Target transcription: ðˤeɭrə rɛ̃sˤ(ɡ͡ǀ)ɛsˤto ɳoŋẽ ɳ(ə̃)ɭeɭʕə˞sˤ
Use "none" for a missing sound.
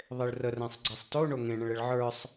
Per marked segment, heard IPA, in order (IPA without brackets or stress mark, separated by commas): ɡ͡ǀ, ə̃